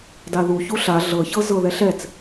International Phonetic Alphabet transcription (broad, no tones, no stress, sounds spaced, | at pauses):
d a ð u ç u ɬ a ɮ ɤ ç ɤ z ɤ ð ɛ ɬ ɛ t͡s